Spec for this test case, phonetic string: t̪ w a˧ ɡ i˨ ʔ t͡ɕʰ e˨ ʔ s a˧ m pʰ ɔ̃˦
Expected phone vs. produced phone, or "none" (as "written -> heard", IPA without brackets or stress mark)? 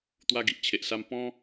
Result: pʰ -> p